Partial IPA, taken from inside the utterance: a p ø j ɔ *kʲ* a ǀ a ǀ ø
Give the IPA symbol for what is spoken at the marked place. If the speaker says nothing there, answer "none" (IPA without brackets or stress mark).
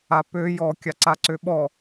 kʲ